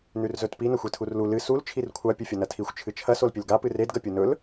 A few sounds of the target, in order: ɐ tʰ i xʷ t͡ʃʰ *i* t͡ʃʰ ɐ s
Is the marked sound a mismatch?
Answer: yes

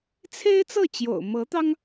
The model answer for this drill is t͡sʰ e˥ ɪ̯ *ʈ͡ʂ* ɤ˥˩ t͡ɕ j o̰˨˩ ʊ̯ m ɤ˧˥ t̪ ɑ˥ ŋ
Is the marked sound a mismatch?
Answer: yes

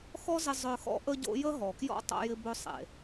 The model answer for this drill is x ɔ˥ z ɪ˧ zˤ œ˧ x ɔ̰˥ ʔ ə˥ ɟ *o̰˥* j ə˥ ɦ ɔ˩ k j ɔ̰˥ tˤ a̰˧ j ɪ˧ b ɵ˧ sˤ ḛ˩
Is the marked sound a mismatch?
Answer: no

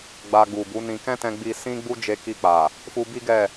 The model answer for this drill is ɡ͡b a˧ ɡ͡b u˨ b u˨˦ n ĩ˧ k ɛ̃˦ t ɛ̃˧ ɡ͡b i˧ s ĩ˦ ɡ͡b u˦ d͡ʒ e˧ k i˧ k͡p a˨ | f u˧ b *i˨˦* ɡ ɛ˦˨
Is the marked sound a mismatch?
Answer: yes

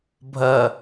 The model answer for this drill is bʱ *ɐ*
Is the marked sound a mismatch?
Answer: no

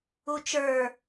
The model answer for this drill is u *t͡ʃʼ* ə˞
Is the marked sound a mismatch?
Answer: yes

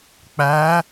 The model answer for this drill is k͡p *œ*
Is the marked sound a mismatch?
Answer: yes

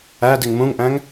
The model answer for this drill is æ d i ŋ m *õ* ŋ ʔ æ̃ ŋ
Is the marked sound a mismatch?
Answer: yes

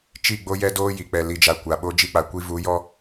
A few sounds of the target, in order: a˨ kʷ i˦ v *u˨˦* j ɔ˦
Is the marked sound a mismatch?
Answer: no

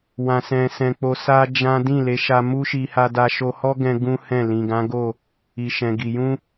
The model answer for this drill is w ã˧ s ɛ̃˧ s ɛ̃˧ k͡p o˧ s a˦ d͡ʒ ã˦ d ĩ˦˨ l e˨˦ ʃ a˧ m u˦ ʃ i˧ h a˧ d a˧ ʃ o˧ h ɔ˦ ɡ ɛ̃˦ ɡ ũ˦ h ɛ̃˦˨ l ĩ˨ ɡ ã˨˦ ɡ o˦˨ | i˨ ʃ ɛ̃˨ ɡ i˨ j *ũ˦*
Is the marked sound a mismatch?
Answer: yes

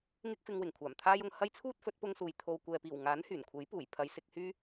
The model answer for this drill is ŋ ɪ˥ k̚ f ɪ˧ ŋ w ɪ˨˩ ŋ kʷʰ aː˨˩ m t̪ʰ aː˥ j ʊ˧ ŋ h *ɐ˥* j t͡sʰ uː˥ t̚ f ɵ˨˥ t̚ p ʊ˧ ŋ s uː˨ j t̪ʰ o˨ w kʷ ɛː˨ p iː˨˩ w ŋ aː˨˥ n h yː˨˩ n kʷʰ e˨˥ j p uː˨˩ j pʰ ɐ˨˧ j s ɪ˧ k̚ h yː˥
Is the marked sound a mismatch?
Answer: no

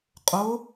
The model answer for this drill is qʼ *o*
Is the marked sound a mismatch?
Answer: no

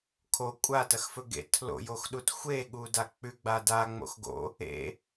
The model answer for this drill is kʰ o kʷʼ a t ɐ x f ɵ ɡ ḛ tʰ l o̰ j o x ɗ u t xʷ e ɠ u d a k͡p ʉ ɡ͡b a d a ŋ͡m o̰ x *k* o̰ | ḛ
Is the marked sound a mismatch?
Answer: yes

